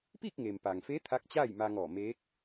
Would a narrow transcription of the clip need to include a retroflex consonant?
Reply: no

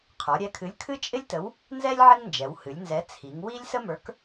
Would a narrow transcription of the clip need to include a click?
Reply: no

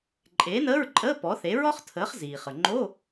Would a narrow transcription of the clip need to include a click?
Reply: yes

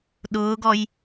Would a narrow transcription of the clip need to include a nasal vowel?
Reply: no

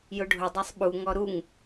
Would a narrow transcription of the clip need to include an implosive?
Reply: yes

